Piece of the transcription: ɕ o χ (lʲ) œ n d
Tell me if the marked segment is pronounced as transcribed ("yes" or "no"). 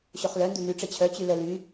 no